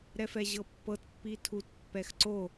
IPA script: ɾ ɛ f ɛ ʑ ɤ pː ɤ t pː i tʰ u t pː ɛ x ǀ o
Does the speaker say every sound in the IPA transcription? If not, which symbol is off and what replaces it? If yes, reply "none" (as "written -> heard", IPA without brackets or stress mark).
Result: none